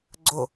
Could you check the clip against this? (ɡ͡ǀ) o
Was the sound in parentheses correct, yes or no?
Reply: yes